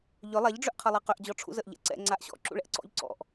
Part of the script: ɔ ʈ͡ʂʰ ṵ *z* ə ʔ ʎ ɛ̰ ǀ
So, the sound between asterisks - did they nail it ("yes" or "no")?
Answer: yes